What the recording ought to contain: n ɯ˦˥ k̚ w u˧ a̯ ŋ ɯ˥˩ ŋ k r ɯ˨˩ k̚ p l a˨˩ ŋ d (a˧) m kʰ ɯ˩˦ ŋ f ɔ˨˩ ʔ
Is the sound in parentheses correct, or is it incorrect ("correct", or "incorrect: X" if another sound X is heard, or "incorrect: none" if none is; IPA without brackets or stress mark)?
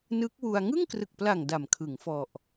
incorrect: a˨˩